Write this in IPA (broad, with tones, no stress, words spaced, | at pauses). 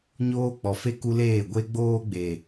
ɲoː˦ k͡pɔ˨fe˦ ku˦leː˦˨ ɡʷe˦ɡ͡boː˦ɡ͡be˨